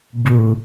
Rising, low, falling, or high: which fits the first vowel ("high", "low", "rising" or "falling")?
low